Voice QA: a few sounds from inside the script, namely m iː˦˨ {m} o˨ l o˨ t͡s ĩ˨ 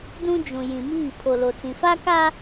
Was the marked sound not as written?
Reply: yes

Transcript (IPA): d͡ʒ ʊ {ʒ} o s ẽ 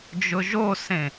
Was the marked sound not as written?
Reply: no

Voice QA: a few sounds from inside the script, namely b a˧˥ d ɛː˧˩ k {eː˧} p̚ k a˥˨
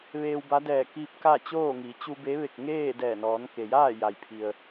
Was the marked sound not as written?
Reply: yes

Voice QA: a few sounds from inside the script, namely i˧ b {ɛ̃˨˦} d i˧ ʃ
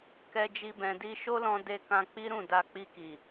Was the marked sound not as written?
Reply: yes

